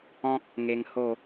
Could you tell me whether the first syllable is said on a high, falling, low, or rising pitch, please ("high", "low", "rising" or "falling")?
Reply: high